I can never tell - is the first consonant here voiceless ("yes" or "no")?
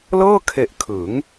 no